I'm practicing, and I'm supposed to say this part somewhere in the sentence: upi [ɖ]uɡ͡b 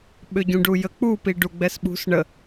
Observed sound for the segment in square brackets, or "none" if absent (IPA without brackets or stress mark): ɖ